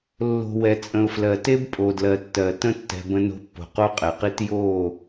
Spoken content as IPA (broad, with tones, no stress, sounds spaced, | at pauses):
lː o̤˨ w ɛ˨ t͡sʼ ə̃˨ ʊ̯ f l ɜ˨ t e˦ b pʼ o˨ d l ɜ˨ tː ɜ˨ t ə̃˦ tː ɛ̤˨ b ə̃˦ n o̤˦ pː o̤˨ q o˦ qʼ ɛ˨ q i˦ t j o˦˨